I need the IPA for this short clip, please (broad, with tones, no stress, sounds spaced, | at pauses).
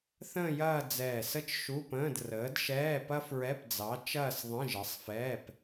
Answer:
θ ə̃ː˥˧ j ɐː˥˧ d͡z ɛː˧˩ s ə˥ t͡ʃ ʃ u˧˥˧ p ə̃ː˧˥˧ d r əː˨˥ d ʃ ɛː˧˥˧ p ɐ˥ f ɹ ɛ˧˥˧ p d͡z ɑ˨˥ t͡ʃ ɐː˥˧ s ðˤ ə̃˧˥˧ ʒ ə˨˥ sˤ f ɛː˧˥˧ p